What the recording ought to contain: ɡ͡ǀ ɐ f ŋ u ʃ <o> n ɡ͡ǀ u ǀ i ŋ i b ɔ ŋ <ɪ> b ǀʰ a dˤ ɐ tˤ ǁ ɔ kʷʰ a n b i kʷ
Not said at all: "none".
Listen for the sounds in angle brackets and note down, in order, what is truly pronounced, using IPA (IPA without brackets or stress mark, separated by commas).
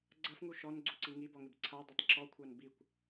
ɔ, ɪ